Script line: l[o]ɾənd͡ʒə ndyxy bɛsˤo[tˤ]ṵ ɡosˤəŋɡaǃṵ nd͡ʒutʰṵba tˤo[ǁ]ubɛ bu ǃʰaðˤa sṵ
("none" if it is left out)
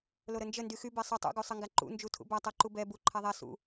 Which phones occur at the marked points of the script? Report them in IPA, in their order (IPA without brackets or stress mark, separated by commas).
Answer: o, tˤ, ǃ